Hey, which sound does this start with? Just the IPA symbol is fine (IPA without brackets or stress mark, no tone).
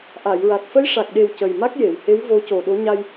ʔ